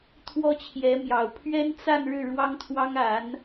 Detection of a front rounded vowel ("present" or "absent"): absent